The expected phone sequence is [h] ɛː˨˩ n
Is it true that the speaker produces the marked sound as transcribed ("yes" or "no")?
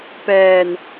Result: no